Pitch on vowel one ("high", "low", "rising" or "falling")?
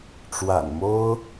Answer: low